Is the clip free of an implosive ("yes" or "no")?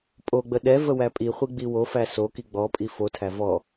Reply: no